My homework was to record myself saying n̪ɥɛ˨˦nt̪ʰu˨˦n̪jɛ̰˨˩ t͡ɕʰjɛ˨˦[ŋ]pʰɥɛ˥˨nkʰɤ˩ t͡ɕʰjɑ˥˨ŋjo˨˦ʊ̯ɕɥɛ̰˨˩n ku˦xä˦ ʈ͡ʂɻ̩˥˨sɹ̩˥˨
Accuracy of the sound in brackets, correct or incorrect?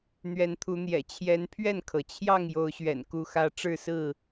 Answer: incorrect